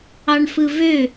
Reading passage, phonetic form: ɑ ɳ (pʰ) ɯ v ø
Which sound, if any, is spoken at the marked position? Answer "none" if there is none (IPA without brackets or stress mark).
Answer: f